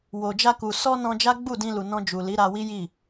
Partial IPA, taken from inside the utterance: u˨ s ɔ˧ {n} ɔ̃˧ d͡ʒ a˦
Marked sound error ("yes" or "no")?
no